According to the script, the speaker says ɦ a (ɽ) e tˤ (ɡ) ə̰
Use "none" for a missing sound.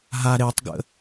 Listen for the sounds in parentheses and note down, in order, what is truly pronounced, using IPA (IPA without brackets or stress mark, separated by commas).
ɾ, ɡ